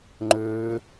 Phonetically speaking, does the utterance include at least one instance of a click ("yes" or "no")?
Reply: yes